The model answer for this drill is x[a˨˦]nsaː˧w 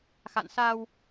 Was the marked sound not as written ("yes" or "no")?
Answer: yes